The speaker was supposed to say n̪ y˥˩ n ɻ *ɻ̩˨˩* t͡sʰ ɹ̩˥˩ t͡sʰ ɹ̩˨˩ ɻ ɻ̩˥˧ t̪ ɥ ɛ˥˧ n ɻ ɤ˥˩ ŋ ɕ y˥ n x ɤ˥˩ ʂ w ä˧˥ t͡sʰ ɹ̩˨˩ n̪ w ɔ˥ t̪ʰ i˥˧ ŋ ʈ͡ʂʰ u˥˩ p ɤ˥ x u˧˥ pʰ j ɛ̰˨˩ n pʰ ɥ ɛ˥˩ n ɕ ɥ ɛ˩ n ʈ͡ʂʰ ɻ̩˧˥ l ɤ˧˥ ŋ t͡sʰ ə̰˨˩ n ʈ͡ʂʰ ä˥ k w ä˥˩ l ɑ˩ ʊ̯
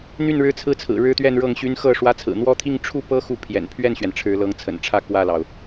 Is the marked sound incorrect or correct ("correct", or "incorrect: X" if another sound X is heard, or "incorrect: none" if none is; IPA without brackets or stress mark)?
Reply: incorrect: ɻ̩˥